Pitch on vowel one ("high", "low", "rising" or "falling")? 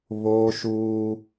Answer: high